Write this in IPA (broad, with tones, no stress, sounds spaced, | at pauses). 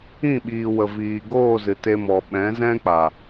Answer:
ĩ˦˨ ɓ iː˨ w ə˨ v iː˨ ɡ oː˦˨ z ɨ˨ t e˧ m ɔ˨ ɓ ɛ̃˨˦ z ɛ̃˦ k͡p a˨